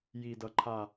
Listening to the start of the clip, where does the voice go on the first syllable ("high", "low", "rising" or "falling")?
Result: low